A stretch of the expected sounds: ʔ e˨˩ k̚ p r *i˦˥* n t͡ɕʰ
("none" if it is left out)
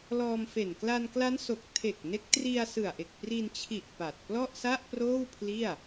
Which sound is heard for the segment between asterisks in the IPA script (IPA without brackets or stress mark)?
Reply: i˧